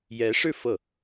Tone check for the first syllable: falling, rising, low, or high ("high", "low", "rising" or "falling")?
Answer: rising